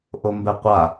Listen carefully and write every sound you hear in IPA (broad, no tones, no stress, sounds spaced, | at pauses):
ʔ o m b ɛ qʷ a